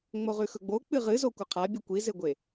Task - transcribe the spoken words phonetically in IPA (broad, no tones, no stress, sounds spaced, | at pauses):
ŋ͡m o ʁ ʉ x ɵ ɡ͡b o k͡p ɨ ʁ ɨ z o kʷ ɐ qʰ a bʲ ʉ kʷ i z e ɡʷ e